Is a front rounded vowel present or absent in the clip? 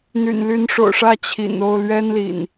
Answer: present